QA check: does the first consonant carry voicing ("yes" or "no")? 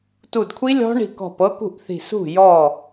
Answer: no